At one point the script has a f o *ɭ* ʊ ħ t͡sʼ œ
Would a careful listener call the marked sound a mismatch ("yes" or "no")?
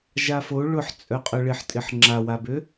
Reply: no